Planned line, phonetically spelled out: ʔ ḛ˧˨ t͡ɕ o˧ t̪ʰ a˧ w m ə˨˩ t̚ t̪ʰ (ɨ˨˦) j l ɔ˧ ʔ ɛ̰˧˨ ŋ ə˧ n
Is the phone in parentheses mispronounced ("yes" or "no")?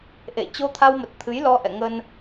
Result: no